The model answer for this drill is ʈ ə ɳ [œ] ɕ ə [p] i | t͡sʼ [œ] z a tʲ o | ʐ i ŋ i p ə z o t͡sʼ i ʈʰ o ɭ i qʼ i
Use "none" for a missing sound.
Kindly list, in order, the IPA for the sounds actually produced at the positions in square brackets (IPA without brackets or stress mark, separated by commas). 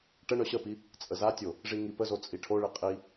œ, p, ə